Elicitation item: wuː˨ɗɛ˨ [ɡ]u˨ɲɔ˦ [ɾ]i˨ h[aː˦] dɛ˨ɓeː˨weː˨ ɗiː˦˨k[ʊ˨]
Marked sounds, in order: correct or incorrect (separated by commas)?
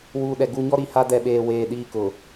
correct, correct, incorrect, correct